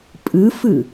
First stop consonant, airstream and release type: ejective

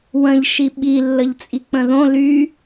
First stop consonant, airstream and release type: implosive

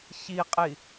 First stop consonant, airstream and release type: ejective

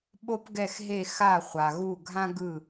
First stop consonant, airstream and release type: implosive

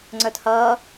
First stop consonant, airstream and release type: click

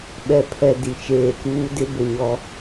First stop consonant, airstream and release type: implosive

